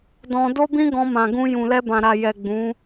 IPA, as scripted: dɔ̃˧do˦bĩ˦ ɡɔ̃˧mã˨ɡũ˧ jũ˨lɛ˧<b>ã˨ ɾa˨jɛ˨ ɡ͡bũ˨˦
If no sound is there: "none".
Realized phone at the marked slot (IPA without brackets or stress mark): b